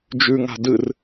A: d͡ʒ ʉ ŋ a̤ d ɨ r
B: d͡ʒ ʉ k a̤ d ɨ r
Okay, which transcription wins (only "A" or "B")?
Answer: A